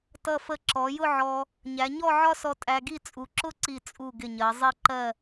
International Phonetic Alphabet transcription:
t ʌ˧˩ f ə˧˩ ǁ ɔ˩˧ j ʊ˥˧ ʕ ɔ˧ | ɲ æ˩˧ ɲ ɔ˥˧ ʕ ɒ˥ s ɔ˧ tʼ æ˧ ɡ i˥˧ t͡sʼ u˩˧ ǁ ʊ˥˧ ǀ i˧˩ t͡sʼ u˧˩ ɡ ɪ˧˩ ɲ ɜ˩˧ zˤ i˥˧ ǃ ɜ˥˧

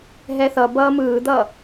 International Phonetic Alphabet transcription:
ɦ ɛ θ ʌ b ʌː m ɯː d̪ ʌː

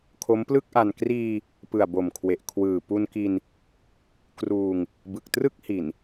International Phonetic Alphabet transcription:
kʰ o˦˥ m p l ɯ˥˩ k̚ ʔ a˧ n k r iː˧ | p ɯ˨˩ a̯ b o˨˩ m kʰ w e˨˩ ʔ kʰ w ɯː˨˩ p u˧ n k i˧ n | k r uː˧ ŋ | b ɯ˨˩ k̚ t r ɯ˥˩ k̚ h i˨˩ n

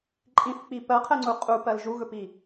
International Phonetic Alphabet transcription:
ǃʼ ĩ θ k͡p i p ɜ qʰ ɛ ŋ͡ǀ u qʼ u p ɜ l ʒ u ɣ ɵ p i

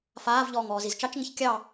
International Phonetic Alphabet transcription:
f aː v ʎ ɔː ŋ ɔː z i z t͡ʃ ɑ t͡ʃ ŋ ə ç kʲ ɑ

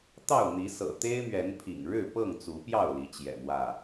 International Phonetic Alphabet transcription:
t̪ ɑ˥˨ ʊ̯ n̪ i˨˦ s ɤ̰˨˩ t̪ e˦ ɪ̯ m ɥ ɛ˨˦ n pʰ ḭ˨˩ ŋ ɻ ɻ̩˥˨ p ɤ˥˨ ŋ t͡s u˨˦ p j ɑ˥˨ ʊ̯ l i˨˦ t͡ɕ j ɛ̰˨˩ m w ä˥˨

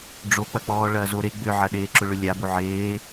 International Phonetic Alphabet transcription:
ɖ͡ʐ o k͡p ɐ k͡p ɔː ɭ ɐː z o ɾ e ɡ͡b ʏ ʕ ɐ ɗ eː ǁ ʊ ɭ ʏ lʲ a b o ʕ eː

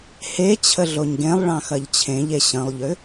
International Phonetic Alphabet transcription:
h e t͡ɕʰ ə ɮ o ɲ ɡ ẽ lˠ ɭ ɑ̃ x ɐ ʎ t͡ɕʰ ẽ ʎ e ɕ ə̃ lˠ ʎ ʏ

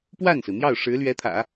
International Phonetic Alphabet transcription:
p w a˥˩ n s ɹ̩˩ n̪ j ɑ˥˩ ʊ̯ ʂ ɻ̩˧˥ l ɥ ɛ˧˥ t̪ʰ ä̰˨˩˦

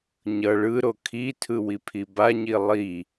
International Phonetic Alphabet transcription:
ɲ ʌ ɭ ɯ ɾ o kʰ i tʰ ɯ w i pʰ i b a ɲ i lˠ i

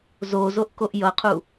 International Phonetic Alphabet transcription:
z o z o ʔ k o ʔ j ʌ qʰ u

